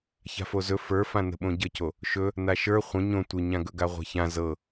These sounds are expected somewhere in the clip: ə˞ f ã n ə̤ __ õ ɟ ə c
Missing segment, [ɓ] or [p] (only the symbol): ɓ